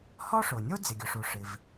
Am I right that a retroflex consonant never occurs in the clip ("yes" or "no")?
no